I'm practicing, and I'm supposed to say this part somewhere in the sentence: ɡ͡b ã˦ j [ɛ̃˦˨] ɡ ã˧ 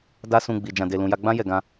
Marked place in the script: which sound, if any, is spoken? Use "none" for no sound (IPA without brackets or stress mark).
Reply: ɛ˦˨